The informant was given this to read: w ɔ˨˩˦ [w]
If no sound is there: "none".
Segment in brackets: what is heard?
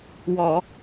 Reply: none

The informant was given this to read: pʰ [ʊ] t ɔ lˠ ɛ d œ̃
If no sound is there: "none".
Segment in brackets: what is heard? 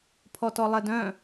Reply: ɔ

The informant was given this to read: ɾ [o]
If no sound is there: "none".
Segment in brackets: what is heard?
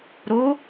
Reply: o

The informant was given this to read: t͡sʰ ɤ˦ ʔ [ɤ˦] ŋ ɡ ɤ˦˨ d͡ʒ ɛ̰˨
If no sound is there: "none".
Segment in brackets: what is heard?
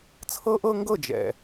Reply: ɤ˦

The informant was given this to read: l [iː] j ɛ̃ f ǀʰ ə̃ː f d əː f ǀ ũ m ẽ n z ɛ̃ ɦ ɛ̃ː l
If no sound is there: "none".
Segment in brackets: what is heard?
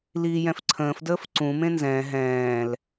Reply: iː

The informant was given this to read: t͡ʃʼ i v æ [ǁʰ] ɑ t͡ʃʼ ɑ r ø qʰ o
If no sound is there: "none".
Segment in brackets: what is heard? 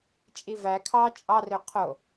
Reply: kʰ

